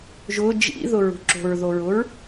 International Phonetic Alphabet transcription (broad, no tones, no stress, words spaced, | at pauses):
ʒʊ d͡ʒḭðʊɹṳ ǁo̤ɹðoɹʊɹ